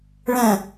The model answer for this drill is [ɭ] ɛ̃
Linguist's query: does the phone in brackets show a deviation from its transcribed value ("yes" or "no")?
no